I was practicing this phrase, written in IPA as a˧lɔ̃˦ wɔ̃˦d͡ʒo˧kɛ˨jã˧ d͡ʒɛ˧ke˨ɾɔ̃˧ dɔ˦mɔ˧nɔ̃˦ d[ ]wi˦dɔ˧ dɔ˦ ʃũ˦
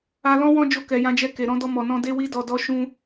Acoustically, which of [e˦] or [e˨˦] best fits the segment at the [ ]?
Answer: e˦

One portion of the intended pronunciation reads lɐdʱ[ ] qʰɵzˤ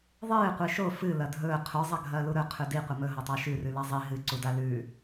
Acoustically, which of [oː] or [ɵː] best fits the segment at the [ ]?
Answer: ɵː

